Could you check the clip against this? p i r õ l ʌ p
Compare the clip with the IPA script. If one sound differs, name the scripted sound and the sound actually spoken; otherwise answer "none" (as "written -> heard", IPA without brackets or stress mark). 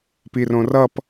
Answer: l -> r